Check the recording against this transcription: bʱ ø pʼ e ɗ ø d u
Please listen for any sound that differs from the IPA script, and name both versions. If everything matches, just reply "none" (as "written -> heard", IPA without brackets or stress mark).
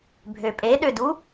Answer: none